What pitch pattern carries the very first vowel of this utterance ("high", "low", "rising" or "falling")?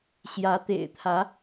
rising